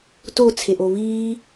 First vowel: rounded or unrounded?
rounded